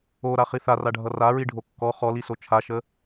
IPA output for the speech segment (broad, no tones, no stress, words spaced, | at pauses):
oɾaχi θaraɖʱʌ raɹiɖʱo kːɔ χɔliso t͡ʃʰaʃə